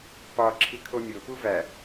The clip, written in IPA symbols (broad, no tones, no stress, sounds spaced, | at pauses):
p ɒ ǁʰ i kʰ o mʲ o p u v æ